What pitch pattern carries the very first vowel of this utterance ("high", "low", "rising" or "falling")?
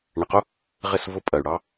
low